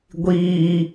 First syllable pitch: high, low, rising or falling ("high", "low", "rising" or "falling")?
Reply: high